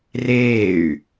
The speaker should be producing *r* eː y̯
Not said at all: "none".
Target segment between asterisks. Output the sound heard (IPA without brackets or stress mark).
r